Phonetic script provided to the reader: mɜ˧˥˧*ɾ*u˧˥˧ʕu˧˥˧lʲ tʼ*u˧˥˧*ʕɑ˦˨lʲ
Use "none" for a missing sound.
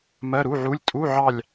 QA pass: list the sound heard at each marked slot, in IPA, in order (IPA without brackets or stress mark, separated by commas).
ɾ, u˧˥˧